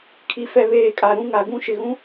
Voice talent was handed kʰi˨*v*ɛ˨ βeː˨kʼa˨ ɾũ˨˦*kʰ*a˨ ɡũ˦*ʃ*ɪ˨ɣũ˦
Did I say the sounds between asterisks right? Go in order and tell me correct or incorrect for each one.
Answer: incorrect: f, incorrect: ŋ, correct

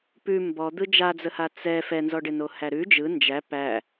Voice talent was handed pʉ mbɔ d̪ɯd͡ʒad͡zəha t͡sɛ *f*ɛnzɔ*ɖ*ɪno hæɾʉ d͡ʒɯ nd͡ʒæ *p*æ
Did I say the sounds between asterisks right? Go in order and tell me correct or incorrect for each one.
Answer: correct, correct, correct

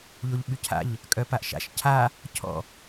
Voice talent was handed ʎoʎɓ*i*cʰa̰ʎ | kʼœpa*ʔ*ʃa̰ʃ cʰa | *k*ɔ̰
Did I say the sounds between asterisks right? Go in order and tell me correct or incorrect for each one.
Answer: incorrect: y, correct, incorrect: cʰ

